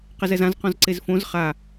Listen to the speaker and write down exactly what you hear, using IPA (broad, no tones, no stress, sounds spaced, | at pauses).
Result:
q ɪ z ɛ z ã z q ɔ̃ z ǀ e z f õ z χ a